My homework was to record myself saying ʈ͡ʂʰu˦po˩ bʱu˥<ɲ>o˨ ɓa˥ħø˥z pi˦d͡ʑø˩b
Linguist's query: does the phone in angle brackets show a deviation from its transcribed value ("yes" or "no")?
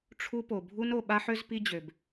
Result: yes